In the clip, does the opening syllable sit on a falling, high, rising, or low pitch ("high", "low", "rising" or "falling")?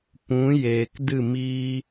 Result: rising